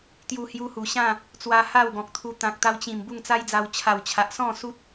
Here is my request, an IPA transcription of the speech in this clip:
t̪ j u˧ h j u˧ h u˨˩ ɕ ã˥˧ | t͡s w a˧ h a˥˧ w ɡ ɔ̃˨ k̚ t̪ʰ u˧ t̪ ã˨ k̚ t̪ a˧ w t͡ɕ ĩ˨˩ m b u˥˧ ŋ t͡s a˦ j d͡z a˧ w t͡ɕʰ a˨˩ w t͡ɕʰ a˨ ʔ s ɔ̃˥˧ s u˦ t̚

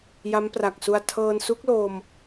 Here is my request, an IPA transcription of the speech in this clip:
j a˦˥ m p r a˨˩ k̚ s u˧ a̯ tʰ ɤː˧ n s u˦˥ k̚ l o˧ m

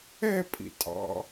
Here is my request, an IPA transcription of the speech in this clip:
ɛ pʼ ḭ tʼ ɑ̰

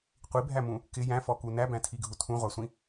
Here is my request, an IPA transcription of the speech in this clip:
qʷ i bʱ æ m ũ | k ɪ j æ̃ f ɔ k u n æ b æ̃ tʰ i ɡʱ u tʰ ũ ʁʷ ɑ sʷ ĩ

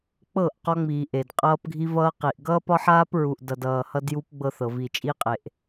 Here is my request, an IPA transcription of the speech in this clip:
k͡p ɤ˦˨ ʔ q ɒ˦ ŋ͡m iː˨ ʔ e˨ d qʼ ʌː˦ p ɡʱ i˦ v ʌː˦ q i˨ ʔ ɡ ʌː˦ p ɒ˦ ħ aː˦ p ɹ u˨ ʔ d ʌ˨ d ʌː˨ h ʌ˦ d j u˦ p ɡ͡b ɤ˦ θ ɤ˨ v i˨ t͡ʃʼ i˦ qʼ e˨ ʔ

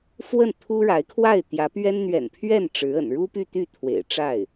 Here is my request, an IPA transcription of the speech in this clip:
f w ə˥˩ n t̪ʰ u˥ ɻ a˧˥ ɪ̯ kʰ w a˥˩ ɪ̯ t̪ j ä˧˥ p ɥ ɛ˥ n n̪ ɥ ɛ̰˨˩ n pʰ ɥ ɛ˥˩ n ʈ͡ʂ ɻ̩˧˥ ə̰˨˩ n ɻ u˥ p y˥˧ t̪ y˥˩ t̪ʰ w ḛ˨˩ ɪ̯ ʈ͡ʂ a˥˩ ɪ̯

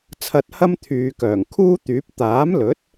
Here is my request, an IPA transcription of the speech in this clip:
t͡sʰ ɐ˧ t̚ h ɐ˥ m t̪ʰ yː˨˧ k œː˨˩ ŋ kʰ uː˥ t̪ yː˨˥ p̚ t̪ aː˨˥ m l ɵ˨˥ t̚

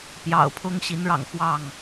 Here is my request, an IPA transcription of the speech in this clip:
p j ɑ̰˨˩ ʊ̯ pʰ ʊ˦ ŋ ɕ i˨˦ n ɻ ɑ̰˨˩ ŋ x w ɑ˥˨ ŋ

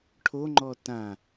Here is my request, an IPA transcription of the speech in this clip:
ʈʰ o ŋ͡ǃ ɔ t ã

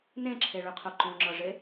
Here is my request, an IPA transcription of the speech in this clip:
n ẽ ǁʰ e ɭ ʉ qʰ o ǃ õ ŋ͡ǁ ɤ ʐ e

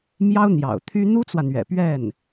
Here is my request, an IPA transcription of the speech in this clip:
m j ɑ˥ ʊ̯ n̪ j ɑ̰˨˩ ʊ̯ t̪ʰ y˥ n̪ u˥ t͡s w ä˨ n̪ ɥ ɛ̰˨˩ p ɥ ɛ˥˩ n

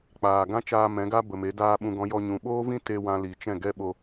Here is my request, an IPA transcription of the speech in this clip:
k͡p aː˨ ɡ ã˦ t͡ʃ aː˧ m ɛ̃˨˦ ɡ a˦ b ə˨ m e˨˦ d aː˦ ɓ ũ˧ ɡ ɔ̃˦ j ɔ˧ ɲ ũ˨ ɓ oː˦ v ĩ˦ t e˧ w ã˧ l i˨ t͡ʃ ɛ̃˦˨ ɡ ɛ˦ ɓ o˧

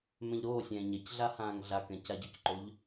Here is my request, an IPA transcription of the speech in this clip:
m ɛ̃ ʎ ɾ oː sʲ ɛ̃ː ɲ ɛ c ɮ a h ãː ŋ ɮ a k ɛ̃ c a ɟ ɵ c ǃ o ʎ

